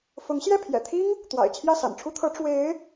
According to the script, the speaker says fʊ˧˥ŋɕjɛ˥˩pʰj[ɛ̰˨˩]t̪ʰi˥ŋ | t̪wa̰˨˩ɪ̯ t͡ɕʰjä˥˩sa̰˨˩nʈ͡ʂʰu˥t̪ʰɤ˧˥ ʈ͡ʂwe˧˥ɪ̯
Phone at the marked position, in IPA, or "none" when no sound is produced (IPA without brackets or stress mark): ɛ̰˨˩